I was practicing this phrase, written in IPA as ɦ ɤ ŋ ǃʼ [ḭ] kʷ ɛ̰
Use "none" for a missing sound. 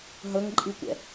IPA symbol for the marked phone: i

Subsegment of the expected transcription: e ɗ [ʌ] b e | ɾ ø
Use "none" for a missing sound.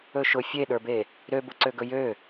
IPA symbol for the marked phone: ə˞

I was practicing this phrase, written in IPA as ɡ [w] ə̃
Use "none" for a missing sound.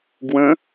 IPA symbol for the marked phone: w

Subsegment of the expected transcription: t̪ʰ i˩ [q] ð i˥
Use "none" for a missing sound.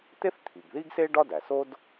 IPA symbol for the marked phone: ɡ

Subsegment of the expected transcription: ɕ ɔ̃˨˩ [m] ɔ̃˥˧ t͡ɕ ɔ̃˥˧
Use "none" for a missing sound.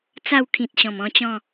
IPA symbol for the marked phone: m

